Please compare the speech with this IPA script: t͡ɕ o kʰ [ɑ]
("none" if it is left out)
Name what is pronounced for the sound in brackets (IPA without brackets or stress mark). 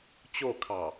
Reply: ɑ